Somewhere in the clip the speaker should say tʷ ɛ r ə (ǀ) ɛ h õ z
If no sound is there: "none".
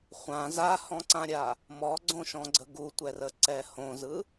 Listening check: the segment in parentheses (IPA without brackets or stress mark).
ǀ